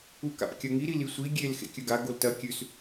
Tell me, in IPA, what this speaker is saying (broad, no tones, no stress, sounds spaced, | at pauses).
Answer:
u k a̰ p kʲ ɐ ŋ i ɾ i l i sʷ i ɡʲ e l x ḛ kʲ ɵ ɡ a ɡ o l t ɐ kʲ ʉ s